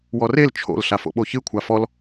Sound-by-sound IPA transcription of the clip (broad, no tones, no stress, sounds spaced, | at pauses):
w ɔ r e l t͡ʃʰ o̰ l ɬ a f o̰ ɓ o ç ɨ kʷʰ a f ɔ l